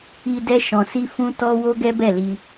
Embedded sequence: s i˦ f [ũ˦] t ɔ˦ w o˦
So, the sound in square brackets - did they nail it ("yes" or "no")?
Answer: yes